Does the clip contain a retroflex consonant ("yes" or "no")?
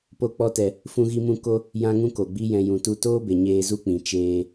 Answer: no